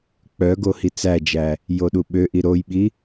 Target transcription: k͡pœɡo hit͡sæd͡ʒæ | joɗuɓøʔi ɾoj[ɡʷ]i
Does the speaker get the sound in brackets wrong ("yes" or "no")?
yes